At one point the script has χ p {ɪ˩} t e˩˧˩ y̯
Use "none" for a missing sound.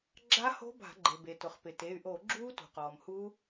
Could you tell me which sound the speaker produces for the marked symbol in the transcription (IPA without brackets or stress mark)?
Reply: ɪ˩